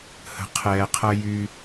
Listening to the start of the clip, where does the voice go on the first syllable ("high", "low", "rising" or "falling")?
low